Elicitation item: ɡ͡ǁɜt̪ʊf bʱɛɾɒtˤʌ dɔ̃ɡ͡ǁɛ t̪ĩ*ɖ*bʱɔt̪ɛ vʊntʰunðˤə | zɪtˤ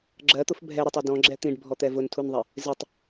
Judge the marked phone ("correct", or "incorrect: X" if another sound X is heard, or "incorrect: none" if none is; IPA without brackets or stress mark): correct